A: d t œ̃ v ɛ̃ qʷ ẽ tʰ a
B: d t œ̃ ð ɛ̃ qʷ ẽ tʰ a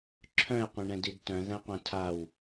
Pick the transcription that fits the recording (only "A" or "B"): B